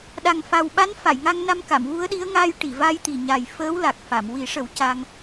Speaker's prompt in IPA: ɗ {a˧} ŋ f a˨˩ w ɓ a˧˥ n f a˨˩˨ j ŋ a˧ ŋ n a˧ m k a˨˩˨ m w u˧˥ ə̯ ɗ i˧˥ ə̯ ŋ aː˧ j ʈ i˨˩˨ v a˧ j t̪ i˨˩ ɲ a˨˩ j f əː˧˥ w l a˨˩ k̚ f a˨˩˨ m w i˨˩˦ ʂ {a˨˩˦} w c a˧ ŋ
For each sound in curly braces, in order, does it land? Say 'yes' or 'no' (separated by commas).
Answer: no, no